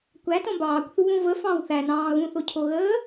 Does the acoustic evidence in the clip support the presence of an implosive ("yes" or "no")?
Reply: no